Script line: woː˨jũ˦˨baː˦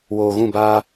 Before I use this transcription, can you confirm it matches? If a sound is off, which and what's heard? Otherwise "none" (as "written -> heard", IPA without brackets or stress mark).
j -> ɣ